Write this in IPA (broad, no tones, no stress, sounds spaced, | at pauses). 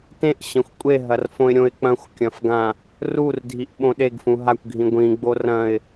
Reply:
t ẽ ʔ ɕ ɐ̃ xʷ kʷʼ e ɦ ɐ r f õ ɪ̯ ɾʲ õ ɪ̯ k͡p ɐ̃ xʷ kʲ ɐ̃ f ɡ ã | r u r dʱ i ʔ ɓ õ ɗ e ɡ f ũ ɦ a kʷ ɡʱ ĩ ɡʷ ĩ ɡ͡b o r ɐ̃ ɪ̯